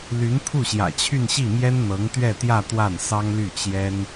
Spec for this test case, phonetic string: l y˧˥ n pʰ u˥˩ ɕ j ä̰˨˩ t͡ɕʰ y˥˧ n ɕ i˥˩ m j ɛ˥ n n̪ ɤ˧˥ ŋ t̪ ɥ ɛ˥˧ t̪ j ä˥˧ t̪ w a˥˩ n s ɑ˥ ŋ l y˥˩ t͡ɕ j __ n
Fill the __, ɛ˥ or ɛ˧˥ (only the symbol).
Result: ɛ˥